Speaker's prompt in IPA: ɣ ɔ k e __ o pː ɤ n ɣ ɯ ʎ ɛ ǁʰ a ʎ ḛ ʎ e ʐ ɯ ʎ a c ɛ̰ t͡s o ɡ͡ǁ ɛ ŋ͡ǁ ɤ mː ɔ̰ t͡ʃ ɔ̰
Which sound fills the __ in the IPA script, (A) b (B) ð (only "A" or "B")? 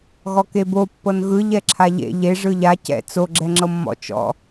A